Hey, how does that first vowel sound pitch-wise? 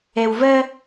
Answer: low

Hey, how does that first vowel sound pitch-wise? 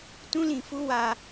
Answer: high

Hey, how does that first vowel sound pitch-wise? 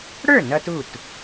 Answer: falling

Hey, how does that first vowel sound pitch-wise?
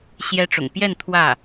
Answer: high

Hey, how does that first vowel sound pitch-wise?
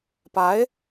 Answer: rising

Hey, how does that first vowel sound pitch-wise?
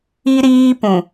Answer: high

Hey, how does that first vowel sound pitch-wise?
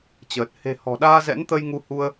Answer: low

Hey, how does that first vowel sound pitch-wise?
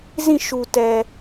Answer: falling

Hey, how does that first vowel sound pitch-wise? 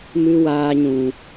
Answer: high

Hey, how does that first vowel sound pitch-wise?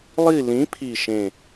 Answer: falling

